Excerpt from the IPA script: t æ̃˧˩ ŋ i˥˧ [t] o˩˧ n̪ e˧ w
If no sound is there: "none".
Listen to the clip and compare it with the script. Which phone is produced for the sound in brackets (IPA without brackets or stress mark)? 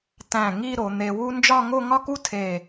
ɾ